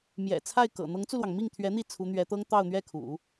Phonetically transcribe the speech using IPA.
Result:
m j ɛ̰˨˩ t͡sʰ a˥˩ ɪ̯ k ɤ̰˨˩ n̪ ɤ˧˥ ŋ t͡s u˧ l w ɑ˩ ŋ m i˥˩ ŋ t̪ʰ ɥ ɛ˧˥ n̪ i˥˩ t͡sʰ u˧˥ n̪ ɥ ɛ˧˥ t̪ ɤ˥ ŋ t̪ ɑ˥˧ ʊ̯ n̪ ɥ ɛ˥˩ kʰ ṵ˨˩˦

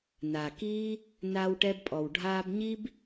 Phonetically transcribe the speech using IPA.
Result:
n a˨ k iː˦ | n aː˧ w ʈ ɛ˧ b pʼ ɔ˨ w ɖʱ aː˧ b ɲ i˦ b

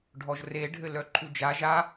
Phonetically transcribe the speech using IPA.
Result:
ɖʱ ɔ ʒ r e ɖʱ ɘ l œ ǃʰ u d͡ʒ a ʒ a

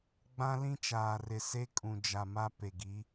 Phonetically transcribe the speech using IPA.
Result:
ɡ͡b ã˦ l ĩ˦ t͡ʃ aː˨ r ɪ˨ s e˦ kʼ ũ˨ d͡ʒ a˨ m a˦ p e˨ ɡ i˨˦

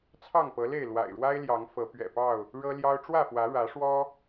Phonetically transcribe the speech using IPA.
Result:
t͡sʰ ɑ˥˨ ŋ p ɤ˨˦ l e˥˨ ɪ̯ l w a̰˨˩ ɪ̯ ɻ w a˦ ɪ̯ l j ɑ˨˦ ŋ f ɤ˨˦ p ɥ ɛ̰˨˩ p ɑ˥˨ ʊ̯ | ɻ ɤ˦ l j ɑ˦ ʊ̯ ʈ͡ʂ w ä˥˨ f w ä˨˦ ɻ ä˨˦ ʂ w ɔ˦

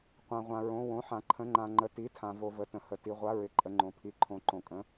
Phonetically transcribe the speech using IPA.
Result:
qʷ ã˩ ʁʷ ã˩ ɹ õ˩˧˩ w õ˩˧˩ ħ ã˩ ǃʰ ə̃˩˧˩ ŋ͡ǃ ã˩ ŋ͡ǃ ə˩˧˩ t i˩˧˩ tʰ ã˩ v o˩ v ə˩ t ə̃˩ h ə˩ t i˩ ʁʷ a˩˧˩ ɹ ɪ˩ ǃʼ ə˩ ŋ͡ǃ õ˩ pʰ i˩ ǃʰ õ˩ ǃ õ˩ kʼ ə̃˩˧˩

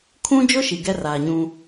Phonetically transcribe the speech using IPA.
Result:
kʰ ũ˦ d͡ʒ ʊ˦ ʃ i˨ ɡ ɛ˦ r aː˨ ɲ ũ˦

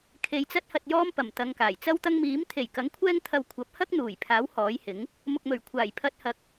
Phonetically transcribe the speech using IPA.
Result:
kʰ e˧ j t͡s ɐ˥ t̚ h ɐ˧ t̚ j ɔː˥ m p ɐ˨˩ m t̪ ɐ˨ ŋ k aː˨˩ j t͡s ɐ˥ w t̪ ɐ˥ ŋ m iː˨˥ m t̪ʰ e˨˩ j k ɐ˨˥ ŋ kʷʰ ɛː˥ ŋ t̪ʰ ɐ˧ w kʷʰ ɐ˨˥ p̚ h ɐ˥ k̚ n̪ uː˨˩ j pʰ aː˨˥ w h ɔː˨˥ j h ɪ˨˥ ŋ | m ʊ˨ k̚ m ɵ˨˩ ɥ kʷʰ aː˨˩ j pʰ ɐ˧ t̚ h ɐ˨˥ k̚

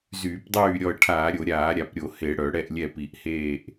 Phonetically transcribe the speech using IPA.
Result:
z yː˧˩˧ p dˤ yː˥˩ ɾʲ ɔ˥˩ ə̯ ʈʰ aː˧˩˧ ɾʲ o˧˩˧ ɾʲ aː˧˩˧ ɾʲ a˧˩˧ p ɾʲ o˧˩˧ h e˧˩˧ ɽ œ˧˩˧ ɽ ɛ˥˩ ʔ lʲ ɛ˥˩ p i˧˩˧ ʔ h eː˥˩ ʔ

